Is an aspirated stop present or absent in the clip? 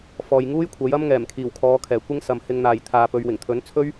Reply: present